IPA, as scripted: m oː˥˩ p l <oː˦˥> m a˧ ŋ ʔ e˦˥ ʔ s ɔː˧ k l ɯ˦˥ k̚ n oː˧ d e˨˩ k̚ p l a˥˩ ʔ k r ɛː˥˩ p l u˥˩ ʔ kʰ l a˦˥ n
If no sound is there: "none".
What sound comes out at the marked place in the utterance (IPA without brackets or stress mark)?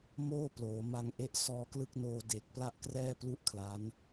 oː˩˦